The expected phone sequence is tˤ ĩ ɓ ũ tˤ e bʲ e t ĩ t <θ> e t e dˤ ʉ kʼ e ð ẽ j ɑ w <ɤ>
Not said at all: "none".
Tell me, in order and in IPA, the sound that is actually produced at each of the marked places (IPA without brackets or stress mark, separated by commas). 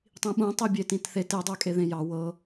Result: θ, ɤ